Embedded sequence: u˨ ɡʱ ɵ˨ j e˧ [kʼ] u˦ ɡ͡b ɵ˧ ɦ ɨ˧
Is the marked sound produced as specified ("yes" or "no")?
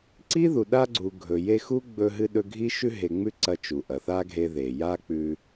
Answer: no